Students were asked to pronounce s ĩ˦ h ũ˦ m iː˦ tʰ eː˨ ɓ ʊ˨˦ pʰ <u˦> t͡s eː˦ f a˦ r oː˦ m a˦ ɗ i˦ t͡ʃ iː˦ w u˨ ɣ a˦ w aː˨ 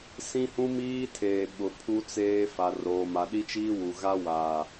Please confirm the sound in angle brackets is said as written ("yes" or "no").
yes